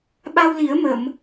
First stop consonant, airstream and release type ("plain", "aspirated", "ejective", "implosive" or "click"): implosive